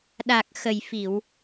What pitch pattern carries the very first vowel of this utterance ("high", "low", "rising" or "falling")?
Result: low